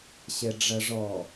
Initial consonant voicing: voiceless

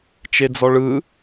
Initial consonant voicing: voiceless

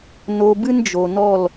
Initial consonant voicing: voiced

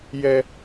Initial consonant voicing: voiced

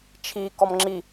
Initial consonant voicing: voiceless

